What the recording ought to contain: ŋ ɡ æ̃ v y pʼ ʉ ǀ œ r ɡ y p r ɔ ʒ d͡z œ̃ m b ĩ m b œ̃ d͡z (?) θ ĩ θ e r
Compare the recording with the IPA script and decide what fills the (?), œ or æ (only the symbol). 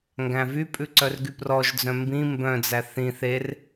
æ